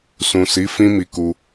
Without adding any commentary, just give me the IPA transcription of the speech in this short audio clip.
s ũ˨ s i˨˦ f ĩ˦ m i˧ k u˧

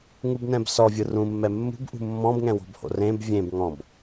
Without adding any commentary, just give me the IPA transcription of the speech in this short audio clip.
ŋ u b n ɛ̃ b s ɔ vʲ ɯ r ũ mː ɛ mː ṳ b ʔ ṳ mː ɔ̃ b ŋ ɛ̃ w ɔ̤ b h o̰ r ẽ b vʲ ẽ b ŋ ɔ̃ b

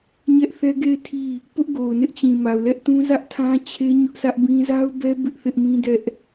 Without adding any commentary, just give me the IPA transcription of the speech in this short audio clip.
ɲ ɛ˦ ʔ θ ɛ˦ ɡ e˦˨ ɪ̯ tʰ i˦˨ | p ʊ˦ ʔ ɡ o˨ ʊ̯ n ɪ˦ ʔ t͡ɕ ĩ˨ m a˨ ʊ̯ l ɛ˦ ʔ t ũ˦ z ä˦ ʔ tʰ ã˦ t͡ɕʰ e˦ ɲ ʊ˦ ʔ s ä˦ ʔ b ĩ˦ z a˦ ʊ̯ b ɛ˦ b ɪ˦ ʔ θ ɪ˦ ʔ m ĩ˦ d ɛ˦ ʔ

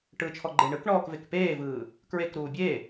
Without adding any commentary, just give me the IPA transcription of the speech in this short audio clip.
ʈ ɯ t͡ʃʰ ɔ ɡ͡ǃ e ɳ ɯ k ɳ ɔː k v e k p eː v ɯː | k ɹ e k ɾ uː bʲ e

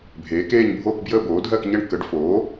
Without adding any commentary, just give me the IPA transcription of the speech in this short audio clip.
bʱ eː˩˥ k eː˥˧ ɲ bʱ oː˥˧ k b j əː˥˧ b oː˩˥ dʱ ɜ˥˧ k ɲ ə˥˧ ɳ k ə˩˥ ɖ f oː˩˥

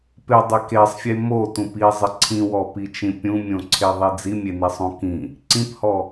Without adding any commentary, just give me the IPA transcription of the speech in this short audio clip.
p ɪ dˤ ɪ k e sˤ fʲ e m o t ũ p i zˤ ɪ ǀʰ ĩ w ɔ p i t͡ʃ ĩ pʲ ũ mʲ õ ǀʰ e ðˤ i d͡z i mʲ e n i sˤ õ k ĩ | ǀ ĩ p h ɔ

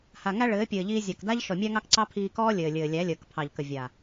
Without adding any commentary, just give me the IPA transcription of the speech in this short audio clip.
h a˨ ŋ æ˦ ɭ ɘː˨˦ pʲ ɘː˨ ʎ iː˧ zʲ ɑ˨ k d a˦ ʎ ʃ ɔ˨ mʲ æ˦ ŋ ɑ˦ k ǀ ɑ˦ pʰ iː˧ k ɔː˦ lʲ ɘː˨ lʲ ɘː˨ lʲ æ˨˦ lʲ əː˨ k pʰ ɑ˨ ʎ k ə˨ vʲ a˨

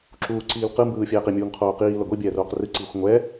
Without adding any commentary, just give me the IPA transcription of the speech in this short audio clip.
ǁ uː ǀ iː l q ɯ m b ɯː fʲ ɛː q i mʲ uː ŋ qʰ oː q iː l ʌ ɡʷ i bʲ ɛː r oː q r ɯ ǀ iː xʷ ŋʷ ɛ

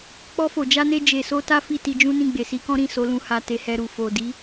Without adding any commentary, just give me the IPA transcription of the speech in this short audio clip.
k͡p ɔ˧ f o˨ d͡ʒ a˧ n e˧ d͡ʒ e˨ s o˧ t a˦ f i˦˨ t i˧ d͡ʒ ũ˦ n ĩ˦˨ ɡ͡b e˨ s i˧ k ɔ̃˦ ɾ ĩ˦˨ s o˨˦ l ũ˧ h a˧ t e˧ h ɛ˧ ɾ u˨ f o˨ d i˨˦

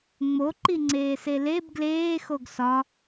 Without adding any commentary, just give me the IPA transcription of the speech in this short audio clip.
ŋ͡m o ǃ i ŋ͡ǀ eː s e l e b ɡ l eː x o ɡ s ɒ

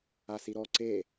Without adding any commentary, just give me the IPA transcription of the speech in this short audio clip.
a s i ɾ ɔ ǀ e

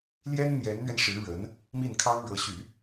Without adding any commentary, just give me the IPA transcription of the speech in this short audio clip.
l j ɛ˥ n n̪ j ɛ˧˥ n n̪ ɥ ɛ˧ n ʂ ɻ̩˧˥ ɻ ə˧˥ n | m i˥˩ n kʰ ɑ˥ ŋ ɻ ɤ˧˥ ɕ y˨˩˦

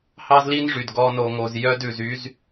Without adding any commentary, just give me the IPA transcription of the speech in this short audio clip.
h ɑ˦ z l i˦ n ʐ y˨ d ɡ ɔ˧ n o˨ ŋ o˨ z j œ˦ d ʉ˨ z y˦ z

